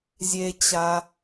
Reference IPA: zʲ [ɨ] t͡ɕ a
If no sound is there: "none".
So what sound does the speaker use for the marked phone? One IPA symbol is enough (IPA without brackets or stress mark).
e